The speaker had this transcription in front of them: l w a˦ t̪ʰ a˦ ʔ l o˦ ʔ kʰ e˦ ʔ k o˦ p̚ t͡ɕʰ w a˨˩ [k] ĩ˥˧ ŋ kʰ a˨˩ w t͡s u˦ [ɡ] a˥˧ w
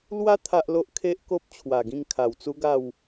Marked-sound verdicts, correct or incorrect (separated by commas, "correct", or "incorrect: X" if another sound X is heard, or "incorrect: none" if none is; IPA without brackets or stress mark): incorrect: ɡ, correct